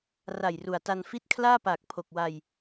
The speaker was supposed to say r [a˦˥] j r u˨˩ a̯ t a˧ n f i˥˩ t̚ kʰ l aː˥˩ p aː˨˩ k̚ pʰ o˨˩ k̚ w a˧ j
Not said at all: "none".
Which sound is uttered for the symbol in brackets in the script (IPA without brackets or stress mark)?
a˨˩